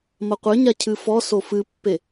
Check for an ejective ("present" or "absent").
absent